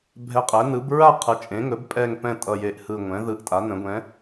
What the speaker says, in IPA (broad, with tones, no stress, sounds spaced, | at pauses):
bʱ ɛ˨˩ qʼ ɛ˩˧ n ɯ˩˧ b ɹ a˦˨ qʰ ɯ˩˧ t͡ʃʼ ẽ˩˧ ŋ ɵ˩˧ b pʼ ɛ˨˩ ŋ p ɛ̃˨˩ tʼ ʌ˨˩ j e˨˩ ʔ h ɯ˨˩ ŋʷ ɛ̃˩˧ ð ɯ˨˩ ʔ tʼ a˩˧ n ə̃˩˧ ɡʷ ɛ̃˩˧